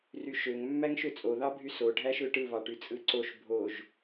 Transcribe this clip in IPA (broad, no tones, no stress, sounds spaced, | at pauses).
r y ʃ ø ŋ mː æ ŋ ʃ ø t͡sʼ o ð ɑ bʱ y s o ɖʱ æ ʃ ø ʈ ɯ β ɑ ʈ y t͡sʼ ɯ ǀ o ʃ bʱ o ʒ